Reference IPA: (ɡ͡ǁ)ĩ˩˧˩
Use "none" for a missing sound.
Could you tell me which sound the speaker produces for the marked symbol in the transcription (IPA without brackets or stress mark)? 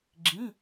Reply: ɡ͡ǁ